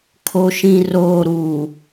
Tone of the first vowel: low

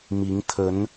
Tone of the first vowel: rising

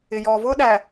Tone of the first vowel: low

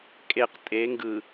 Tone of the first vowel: low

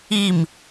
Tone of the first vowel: falling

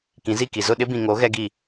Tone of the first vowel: rising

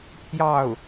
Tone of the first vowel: falling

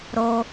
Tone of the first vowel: high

